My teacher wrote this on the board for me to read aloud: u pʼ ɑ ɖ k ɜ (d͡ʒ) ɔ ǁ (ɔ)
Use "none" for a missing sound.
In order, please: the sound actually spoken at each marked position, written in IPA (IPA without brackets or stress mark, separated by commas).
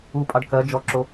d͡ʒ, o